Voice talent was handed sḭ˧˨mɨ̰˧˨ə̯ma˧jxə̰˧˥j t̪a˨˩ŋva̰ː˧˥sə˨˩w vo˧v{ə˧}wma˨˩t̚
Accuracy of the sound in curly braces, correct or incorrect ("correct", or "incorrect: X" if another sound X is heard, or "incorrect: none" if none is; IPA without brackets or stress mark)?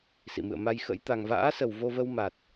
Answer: correct